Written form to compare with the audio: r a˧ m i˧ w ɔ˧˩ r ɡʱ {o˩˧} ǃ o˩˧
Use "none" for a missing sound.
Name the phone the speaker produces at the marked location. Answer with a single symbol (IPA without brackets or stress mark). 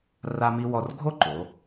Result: o˥˧